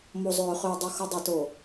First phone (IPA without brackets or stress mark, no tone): m